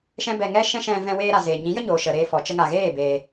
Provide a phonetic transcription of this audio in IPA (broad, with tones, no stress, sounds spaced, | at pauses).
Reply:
ʃ ɛ̃˦ b ɛ˧ ŋ ɛ˦ ʃ ɛ̃˦ ʃ ɛ̃˧ v ɛ̃˧ w eː˧ ɾ a˨ z eː˨ ɲ ĩ˨˦ j ə˦ ɲ oː˨ ʃ ə˨ ɾ eː˧ f ɔ˨ t͡ʃ ə˧ ŋ a˨ ɣ eː˦˨ b eː˧